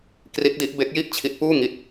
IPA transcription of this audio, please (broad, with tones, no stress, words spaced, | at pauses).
kri˦˥t̚di˦˥ʔ be˦˥k̚ji˥˩ʔ t͡ɕʰi˦˥t̚puː˥˩ŋi˦˥t̚